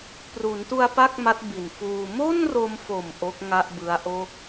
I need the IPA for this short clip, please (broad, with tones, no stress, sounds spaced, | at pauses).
p r u˩˦ n t u˧ a̯ p a˥˩ k̚ m a˦˥ t̚ b i˨˩ n f uː˧ m o˥˩ n r o˧ m f o˨˩ m ʔ o˦˥ k̚ ŋ a˥˩ ʔ b ɯ˦˥ a̯ ʔ o˥˩ k̚